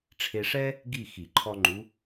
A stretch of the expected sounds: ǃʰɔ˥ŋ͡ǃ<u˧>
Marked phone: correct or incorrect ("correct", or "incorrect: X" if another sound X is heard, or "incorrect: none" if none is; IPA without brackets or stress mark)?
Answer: incorrect: u˧˥